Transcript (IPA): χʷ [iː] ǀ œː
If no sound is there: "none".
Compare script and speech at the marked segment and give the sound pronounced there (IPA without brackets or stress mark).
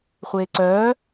eː